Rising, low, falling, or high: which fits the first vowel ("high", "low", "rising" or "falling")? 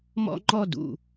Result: high